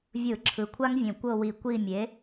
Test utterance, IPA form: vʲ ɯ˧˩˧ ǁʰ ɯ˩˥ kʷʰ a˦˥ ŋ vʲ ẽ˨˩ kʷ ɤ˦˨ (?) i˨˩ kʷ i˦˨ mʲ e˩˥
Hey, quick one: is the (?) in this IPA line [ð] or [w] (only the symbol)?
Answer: w